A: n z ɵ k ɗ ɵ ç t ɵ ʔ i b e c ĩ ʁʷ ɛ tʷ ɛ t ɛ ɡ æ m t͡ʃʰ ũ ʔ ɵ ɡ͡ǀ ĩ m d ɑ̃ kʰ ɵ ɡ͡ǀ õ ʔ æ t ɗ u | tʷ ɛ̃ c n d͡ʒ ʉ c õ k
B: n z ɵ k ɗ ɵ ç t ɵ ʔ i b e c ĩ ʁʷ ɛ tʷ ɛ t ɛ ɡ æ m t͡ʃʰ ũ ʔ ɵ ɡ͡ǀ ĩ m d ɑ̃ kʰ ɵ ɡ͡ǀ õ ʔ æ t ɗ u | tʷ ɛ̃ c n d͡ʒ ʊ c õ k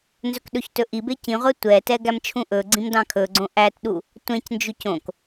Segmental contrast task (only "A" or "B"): A